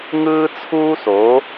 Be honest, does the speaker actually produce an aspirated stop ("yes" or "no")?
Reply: yes